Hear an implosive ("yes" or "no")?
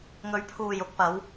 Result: no